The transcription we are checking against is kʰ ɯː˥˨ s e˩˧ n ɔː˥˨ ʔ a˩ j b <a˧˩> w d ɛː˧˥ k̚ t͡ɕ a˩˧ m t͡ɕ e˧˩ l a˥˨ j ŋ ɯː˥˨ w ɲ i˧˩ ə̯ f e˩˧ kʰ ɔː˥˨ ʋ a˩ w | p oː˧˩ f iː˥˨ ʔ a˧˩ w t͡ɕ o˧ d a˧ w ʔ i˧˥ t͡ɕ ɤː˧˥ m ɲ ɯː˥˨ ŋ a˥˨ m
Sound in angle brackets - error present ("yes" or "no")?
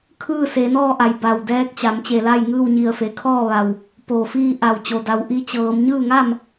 no